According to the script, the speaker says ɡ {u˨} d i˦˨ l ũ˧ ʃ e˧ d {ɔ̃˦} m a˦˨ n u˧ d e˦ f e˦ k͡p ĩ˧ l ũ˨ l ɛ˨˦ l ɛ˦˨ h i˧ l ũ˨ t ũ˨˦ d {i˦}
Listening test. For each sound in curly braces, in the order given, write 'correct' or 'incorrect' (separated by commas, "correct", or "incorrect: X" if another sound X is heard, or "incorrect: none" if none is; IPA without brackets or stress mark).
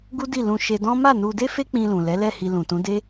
incorrect: u˦, correct, incorrect: e˦